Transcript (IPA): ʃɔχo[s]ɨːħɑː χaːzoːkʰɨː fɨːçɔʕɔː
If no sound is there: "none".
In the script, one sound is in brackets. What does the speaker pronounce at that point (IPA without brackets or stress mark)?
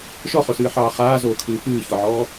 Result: s